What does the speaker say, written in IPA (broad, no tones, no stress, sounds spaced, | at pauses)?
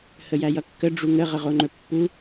h ə j æ j ʌ kː ə ɖ͡ʐ u ŋ ə ʁ ə ʁ o ŋ͡ǃ ɵ pː u